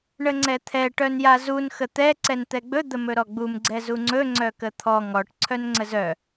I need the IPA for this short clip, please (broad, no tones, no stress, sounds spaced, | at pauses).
ɳ ə ŋ͡ǀ ɛ t̪ʰ ɛ ʈ œ n j a z u n x ə t̪ ɛ ǀ ɛ n t̪ ɛ ɡ͡b ɵ d̪ ə m ɵ ɾ ɔ ɡ͡b u m ɡ͡ǀ ɛ z u ŋ͡ǀ ɵ ŋ͡ǀ œ k ə t̪ʰ ɔ ŋ ɔ ʈ ǀʰ œ n ŋ͡ǀ ə z œ